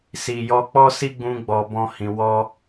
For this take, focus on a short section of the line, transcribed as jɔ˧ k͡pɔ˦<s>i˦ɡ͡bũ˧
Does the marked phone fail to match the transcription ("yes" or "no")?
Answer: no